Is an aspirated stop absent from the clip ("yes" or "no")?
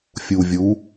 yes